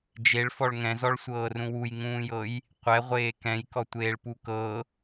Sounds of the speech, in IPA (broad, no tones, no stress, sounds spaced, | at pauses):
d͡ʒ e ɭ f ɔ ɭ ŋ ɛ̃ z ɔ ɭ sʷ ɤː r ũ w u j ŋ ũː j ɤ j | qʷ ɛ ʁʷ eː k ɛ̃ j k ɔ tʷ eː ɭ p u k ɤ